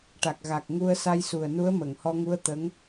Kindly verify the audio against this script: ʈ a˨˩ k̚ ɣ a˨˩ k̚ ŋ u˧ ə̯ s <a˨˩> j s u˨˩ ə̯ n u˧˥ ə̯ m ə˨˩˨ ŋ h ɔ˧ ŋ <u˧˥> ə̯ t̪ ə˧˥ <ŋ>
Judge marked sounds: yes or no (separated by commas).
no, yes, yes